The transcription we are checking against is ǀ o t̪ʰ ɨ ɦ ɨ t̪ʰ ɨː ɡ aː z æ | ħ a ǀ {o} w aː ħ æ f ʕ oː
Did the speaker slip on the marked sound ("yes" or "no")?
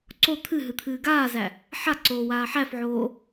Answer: yes